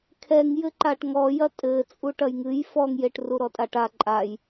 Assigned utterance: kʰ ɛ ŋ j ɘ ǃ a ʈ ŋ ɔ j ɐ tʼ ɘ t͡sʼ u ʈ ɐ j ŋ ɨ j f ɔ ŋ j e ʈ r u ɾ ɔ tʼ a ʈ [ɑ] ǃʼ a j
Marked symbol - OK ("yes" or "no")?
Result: no